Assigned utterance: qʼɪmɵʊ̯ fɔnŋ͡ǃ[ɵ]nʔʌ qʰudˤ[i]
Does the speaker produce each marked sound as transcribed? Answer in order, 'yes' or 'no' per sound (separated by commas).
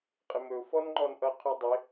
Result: no, no